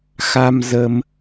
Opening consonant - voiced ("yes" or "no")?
no